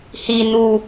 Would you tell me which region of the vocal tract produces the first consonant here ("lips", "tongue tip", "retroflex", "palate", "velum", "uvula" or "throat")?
throat